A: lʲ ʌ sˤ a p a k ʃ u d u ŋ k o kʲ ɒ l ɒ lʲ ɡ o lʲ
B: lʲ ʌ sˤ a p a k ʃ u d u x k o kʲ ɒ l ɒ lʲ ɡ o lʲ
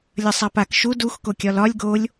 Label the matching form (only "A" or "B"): B